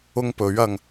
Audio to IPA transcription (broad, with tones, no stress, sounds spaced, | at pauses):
ʊ˥ ŋ p ɵ˨˥ ɥ ɐ˧ ŋ